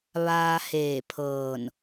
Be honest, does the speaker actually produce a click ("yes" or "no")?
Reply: no